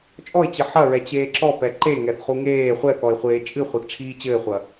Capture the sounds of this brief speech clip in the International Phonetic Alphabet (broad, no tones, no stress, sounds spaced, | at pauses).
t͡ʃʼ ɔ ɪ̯ t͡ɕ ɨ ħ ɐ ɹ ɛ t͡ɕ eː ǁ ɔ p ɛ ǃ e ŋ ɛ θ χ u ŋ eː χʷ ɛ θ ɔ ɪ̯ χʷ eː t͡ʃʼ ɨ χʷ e θ ʈ͡ʂʰ iː t͡ɕ ɘː χʷ ɐ